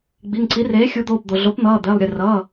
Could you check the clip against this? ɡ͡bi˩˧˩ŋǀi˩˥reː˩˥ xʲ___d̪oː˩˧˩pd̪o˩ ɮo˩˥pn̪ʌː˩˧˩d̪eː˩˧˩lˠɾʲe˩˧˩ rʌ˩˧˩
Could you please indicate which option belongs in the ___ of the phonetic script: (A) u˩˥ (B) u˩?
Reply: A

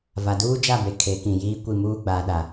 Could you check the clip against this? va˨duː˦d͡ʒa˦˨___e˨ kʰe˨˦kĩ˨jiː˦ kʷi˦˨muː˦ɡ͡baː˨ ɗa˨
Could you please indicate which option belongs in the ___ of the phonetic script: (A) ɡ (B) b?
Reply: B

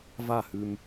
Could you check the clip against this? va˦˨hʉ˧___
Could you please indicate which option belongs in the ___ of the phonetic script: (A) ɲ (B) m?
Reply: B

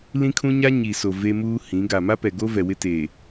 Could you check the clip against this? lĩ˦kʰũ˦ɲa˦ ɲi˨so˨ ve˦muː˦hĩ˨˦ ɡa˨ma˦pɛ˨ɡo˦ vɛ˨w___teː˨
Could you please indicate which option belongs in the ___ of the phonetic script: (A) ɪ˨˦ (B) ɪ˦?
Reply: B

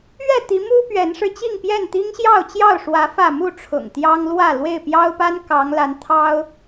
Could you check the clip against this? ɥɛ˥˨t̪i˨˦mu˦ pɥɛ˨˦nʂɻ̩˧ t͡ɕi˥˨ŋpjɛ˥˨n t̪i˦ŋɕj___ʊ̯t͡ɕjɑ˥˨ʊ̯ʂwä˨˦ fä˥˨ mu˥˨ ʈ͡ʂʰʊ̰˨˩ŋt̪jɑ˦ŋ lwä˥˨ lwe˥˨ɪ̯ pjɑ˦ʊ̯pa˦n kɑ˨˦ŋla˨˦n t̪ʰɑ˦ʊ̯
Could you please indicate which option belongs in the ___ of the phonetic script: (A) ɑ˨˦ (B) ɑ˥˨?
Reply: B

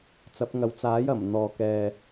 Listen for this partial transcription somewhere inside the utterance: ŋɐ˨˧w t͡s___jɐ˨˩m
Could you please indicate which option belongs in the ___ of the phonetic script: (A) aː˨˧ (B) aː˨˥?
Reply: B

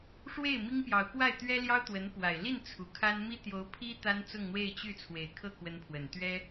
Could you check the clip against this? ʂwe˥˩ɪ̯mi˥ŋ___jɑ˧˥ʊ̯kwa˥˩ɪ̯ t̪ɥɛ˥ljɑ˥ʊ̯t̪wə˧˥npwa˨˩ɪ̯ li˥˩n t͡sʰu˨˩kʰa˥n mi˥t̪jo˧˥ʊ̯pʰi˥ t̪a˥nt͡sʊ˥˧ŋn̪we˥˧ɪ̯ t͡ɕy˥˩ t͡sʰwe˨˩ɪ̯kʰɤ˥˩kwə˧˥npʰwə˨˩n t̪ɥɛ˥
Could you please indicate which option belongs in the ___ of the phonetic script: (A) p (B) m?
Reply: A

